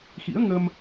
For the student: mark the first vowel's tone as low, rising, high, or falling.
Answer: rising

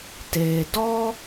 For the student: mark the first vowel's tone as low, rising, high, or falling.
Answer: low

